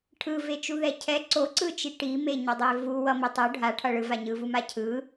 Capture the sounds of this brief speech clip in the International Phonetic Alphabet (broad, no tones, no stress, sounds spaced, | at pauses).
ʈʰ ɯ v e t͡ʃ u ð ɛ cʰ ɛ ǀ o ǀ ɯ t͡ʃ i ʈ i m e ɲ ʌ dˤ e v u w ʌ m i tˤ o ɖʱ a ʈʰ ʌ ɭ ɯ v a ɲ ɯ v u m a cʰ ɯ